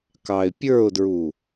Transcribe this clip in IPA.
k ɑ ɪ̯ pʲ ə˞ ʊ̯ d ɹ u

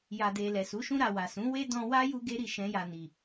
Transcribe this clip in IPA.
j a˨ d e˨ l ɛ˨ s u˨˦ ʃ ũ˧ ɾ a˨ w a˨ s ũ˨˦ w e˦ d ɔ̃˧ w a˦ j u˦ ɡ e˦ ɾ i˦˨ ʃ ɛ̃˧ j a˨ n i˨

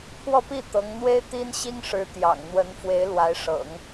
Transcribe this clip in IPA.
pʰ w ɔ˥˧ p i˥˩ t̪ ɤ˧˥ ŋ n̪ w e˥ ɪ̯ t̪ i˥ n ɕ i˥ ŋ ʂ ɻ̩˧˥ t̪ j ɑ̰˨˩ ŋ n̪ w ə˧˥ n f w e˧˥ ɪ̯ l w a˧˥ ɪ̯ ʂ ɤ̰˨˩˦ ŋ

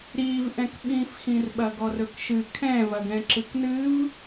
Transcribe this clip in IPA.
ɾ iː v ʔ ɛ̃ k ɓ ĩː f x ĩ r ɓ ɐ ɡ ɔ r ɵ k ʃ ɨ kʰ ɛ̃ v ɐ ɡ ɛ̃ ǁ ɨ k n ɨ v

